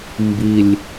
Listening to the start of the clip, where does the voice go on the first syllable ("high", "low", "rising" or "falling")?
low